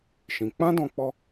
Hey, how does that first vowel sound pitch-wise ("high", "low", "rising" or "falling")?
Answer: low